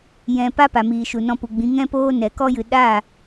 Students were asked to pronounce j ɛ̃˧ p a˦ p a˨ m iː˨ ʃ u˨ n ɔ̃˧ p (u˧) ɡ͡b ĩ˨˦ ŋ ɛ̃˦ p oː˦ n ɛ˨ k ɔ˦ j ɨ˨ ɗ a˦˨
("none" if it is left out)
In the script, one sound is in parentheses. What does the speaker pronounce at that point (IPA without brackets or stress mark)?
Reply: u˨